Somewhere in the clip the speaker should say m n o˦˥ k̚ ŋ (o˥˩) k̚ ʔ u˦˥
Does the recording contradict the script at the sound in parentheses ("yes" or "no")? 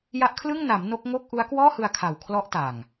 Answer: no